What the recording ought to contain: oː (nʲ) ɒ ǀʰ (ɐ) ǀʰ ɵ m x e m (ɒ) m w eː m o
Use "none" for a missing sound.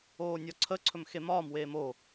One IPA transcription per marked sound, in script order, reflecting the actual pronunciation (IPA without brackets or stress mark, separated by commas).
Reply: nʲ, ə, ɒː